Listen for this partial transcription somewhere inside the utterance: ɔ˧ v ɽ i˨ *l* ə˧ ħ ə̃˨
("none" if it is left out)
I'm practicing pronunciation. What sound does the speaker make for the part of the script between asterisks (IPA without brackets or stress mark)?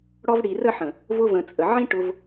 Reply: r